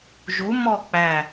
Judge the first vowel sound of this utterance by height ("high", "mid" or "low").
high